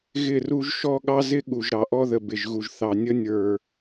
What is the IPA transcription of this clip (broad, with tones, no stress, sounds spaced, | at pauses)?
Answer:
ɣ ɪ˦˨ r u˦ ʒ ʃ ɔ˦ ɠ ɑ˦ z ɪ˦ ɠ u˨ ʒ ɾ ɑ˨ ʔ ɔ˦ ð ə˨ b ɪ˨ ʒ ɣ u˨ ʒ θ ɑ˨ nʲ ə˦ nʲ ə˞˨